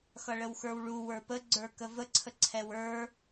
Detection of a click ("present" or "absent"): present